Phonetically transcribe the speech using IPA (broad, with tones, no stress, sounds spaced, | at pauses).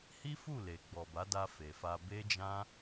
h i˦ f u˦˨ l e˨ ɡ͡b ɔ˨ b a˨˦ d a˧ f e˨ f a˧ b e˦ d͡ʒ ã˦